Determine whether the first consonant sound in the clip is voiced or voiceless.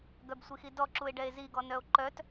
voiced